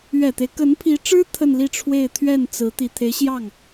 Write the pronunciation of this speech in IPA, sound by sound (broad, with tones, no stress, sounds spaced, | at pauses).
ɥ ɛ˨˩ t̪ e˦ ɪ̯ k ə˧˥ n pʰ i˧˥ ʈ͡ʂ ɻ̩˥ t̪ʰ ə˥˧ n l i˥˧ ʈ͡ʂʰ w e˥˧ ɪ̯ t̪ʰ ɥ ɛ˥˩ n t͡s ɹ̩˧˥ t̪ i˨˩ t̪ʰ e˧˥ ɪ̯ ɕ j ɑ˥˩ ŋ